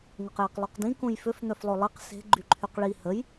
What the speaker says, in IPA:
ŋ o q j e q lˠ o q d ĩ k ũ j f ʏ f n̪ œ f lˠ o lˠ i q s e̤ ɡ͡ǃ y ǃʰ y q ɭ i h ə j

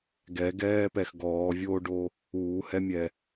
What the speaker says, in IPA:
ɡ ɛ ɡ ɛː p ɛ x ɡ ɔː vʲ oː ɖ o | uː h ɛ mʲ ɛ

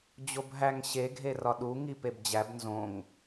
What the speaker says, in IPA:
d͡ʑ o b ɦ æ ŋ ɕ e ɡʱ e r ɒ ɗ u ŋ i p e b d͡ʑ æ b n z õ ŋ

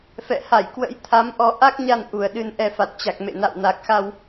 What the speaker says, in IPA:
f ɛ̰˧˨ h a˧˩ j k w ə̰˧˥ j t̪ʰ a˨˦ m ʔ ɔ˨˦ ʔ a˦˥ k̚ ɲ a˧ n ʔ u˨˩ ə̯ ɗ ɨ˧ n ʔ ɛ˧ f a˨˩ t̚ t͡ɕ a˨˩ k̚ m ḛ˧˨ n a̰˧˨ w n a˨˩ k̚ x a˧ w

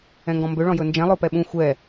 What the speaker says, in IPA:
ɛ̃ ŋ ɡ ɔ̃ m b ø ɭ ɔ̃ j ɵ n d͡ʒ ɛ̃ lˠ o p ɛ ɓ ũ xʷ ɛ

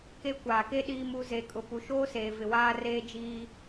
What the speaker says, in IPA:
k e˦ kʷ aː˨ k e˦ ɗ iː˦ m u˦ z e˨ kʼ ʊ˨ p u˨ ʃ oː˦ s eː˨ v ɪ˨ w aː˦ r eː˦ d͡ʒ iː˦

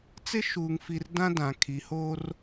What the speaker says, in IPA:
t͡s ɪ˦ ʃ uː˨ ŋ f i˨ r d ã˦ d ã˨ kʰ i˨ h oː˦ r

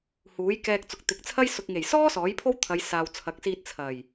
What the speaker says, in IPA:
h uː˨˥ j k ɛː˧ k̚ t͡s ʊ˨ k̚ t̪ ɪ˨ k̚ t͡sʰ ɐ˥ j s ʊ˨ k̚ ŋ e˨˩ j s ɔː˥ s ɔː˨˥ j pʰ o˥ w t̪ʰ ɐ˨˧ j s aː˨ w t͡sʰ ɐ˨˥ k̚ s iː˧ t̚ t͡sʰ ɐ˨˩ j

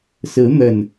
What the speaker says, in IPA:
s ɹ̩˨˦ n̪ ə˨˩ n

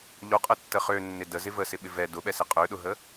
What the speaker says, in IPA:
ʎ o qʼ ə tː ə χ ø nː ɪ d ə z ɪ v ə s ɪ ɓ ɪ v ɛ d ʊ ɓ ɛ s ɪ qʼ ø ɗ ʊ ɦ ə

